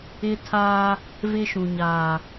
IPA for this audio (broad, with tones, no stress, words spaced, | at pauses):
ɪ˦tʰaː˦ | vɪ˦ʃũ˨ɲaː˨